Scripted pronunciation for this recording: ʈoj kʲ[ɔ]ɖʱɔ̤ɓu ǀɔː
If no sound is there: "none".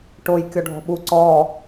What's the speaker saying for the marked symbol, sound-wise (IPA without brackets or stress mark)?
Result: ɔ